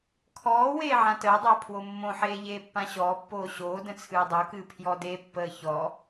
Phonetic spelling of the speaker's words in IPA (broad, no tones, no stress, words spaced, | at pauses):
kʰɔː weːʕãtəːdˤəː pʰwomːõħeː ʎeːpːãɕɔːpːoː ɕoː də̃t͡sʰɨːdˤokɨː pʰjɔdepːəː çɔ